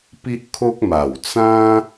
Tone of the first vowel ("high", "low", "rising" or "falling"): high